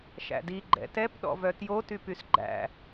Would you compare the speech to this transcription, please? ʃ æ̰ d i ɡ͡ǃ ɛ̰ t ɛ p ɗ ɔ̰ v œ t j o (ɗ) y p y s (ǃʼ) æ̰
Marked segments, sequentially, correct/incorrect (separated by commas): incorrect, incorrect